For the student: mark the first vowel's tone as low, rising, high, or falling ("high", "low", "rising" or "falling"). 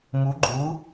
rising